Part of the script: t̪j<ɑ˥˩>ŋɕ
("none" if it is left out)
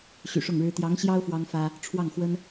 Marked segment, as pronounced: ɑ˧˥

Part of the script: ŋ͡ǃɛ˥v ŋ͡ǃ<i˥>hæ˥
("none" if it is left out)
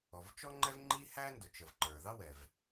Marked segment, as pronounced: i˥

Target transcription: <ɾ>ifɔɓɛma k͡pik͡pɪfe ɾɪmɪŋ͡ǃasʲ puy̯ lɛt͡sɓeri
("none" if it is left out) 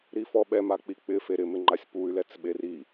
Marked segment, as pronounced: ɾ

